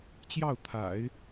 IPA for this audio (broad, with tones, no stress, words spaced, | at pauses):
t͡ɕjɑ˥˩ʊ̯t̪ʰa̰˨˩˦ɪ̯